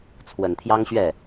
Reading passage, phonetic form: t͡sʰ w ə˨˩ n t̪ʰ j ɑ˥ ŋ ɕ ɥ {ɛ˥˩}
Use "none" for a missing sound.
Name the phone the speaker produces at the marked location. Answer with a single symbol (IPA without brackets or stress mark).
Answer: ɛ˥˩